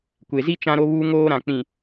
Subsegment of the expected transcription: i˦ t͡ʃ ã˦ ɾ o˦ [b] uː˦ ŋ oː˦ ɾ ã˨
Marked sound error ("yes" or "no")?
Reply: yes